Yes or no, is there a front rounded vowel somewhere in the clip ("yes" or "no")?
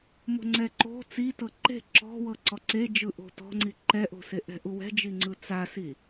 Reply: no